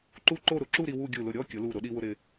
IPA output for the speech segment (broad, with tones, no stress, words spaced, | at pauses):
ǃu˥˧ǃo˥˧ɾʊ˩˧ ǁu˥˧ɾi˧ wu˥˧ ɡʲu˧˩lʊ˧˩ ɾʲɔ˥˧ kʲʊ˩˧ lu˧˩ ɾʊ˩˧ɗi˧wʊ˧ ɾɪ˧